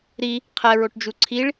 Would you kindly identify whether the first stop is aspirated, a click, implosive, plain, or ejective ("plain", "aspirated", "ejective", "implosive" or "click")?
aspirated